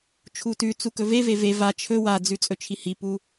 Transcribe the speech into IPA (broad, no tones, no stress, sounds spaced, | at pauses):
t͡ʃʰ u t ʉ t͡s u k ɵ v e v e v e v a t͡ʃʰ ɵ w a d͡z ʉ t͡sʼ ɵ t͡ʃʰ i h i p u